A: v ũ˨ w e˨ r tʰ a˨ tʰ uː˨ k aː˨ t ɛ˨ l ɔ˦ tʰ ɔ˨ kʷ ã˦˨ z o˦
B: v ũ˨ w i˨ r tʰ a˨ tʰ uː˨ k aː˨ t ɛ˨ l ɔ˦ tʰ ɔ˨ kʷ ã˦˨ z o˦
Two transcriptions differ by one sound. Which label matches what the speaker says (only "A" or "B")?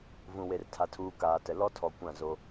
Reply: A